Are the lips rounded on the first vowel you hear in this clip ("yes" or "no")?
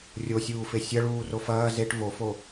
yes